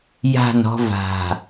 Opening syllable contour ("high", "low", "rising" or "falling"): falling